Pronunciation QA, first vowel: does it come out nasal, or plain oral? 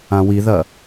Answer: nasal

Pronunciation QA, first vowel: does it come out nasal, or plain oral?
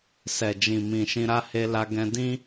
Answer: oral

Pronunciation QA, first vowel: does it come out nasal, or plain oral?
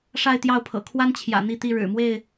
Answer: oral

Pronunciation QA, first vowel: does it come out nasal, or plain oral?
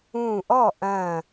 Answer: nasal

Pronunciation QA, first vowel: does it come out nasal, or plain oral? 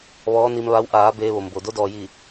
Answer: oral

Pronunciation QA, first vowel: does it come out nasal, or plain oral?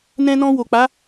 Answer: nasal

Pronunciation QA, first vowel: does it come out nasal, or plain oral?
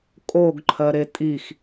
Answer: oral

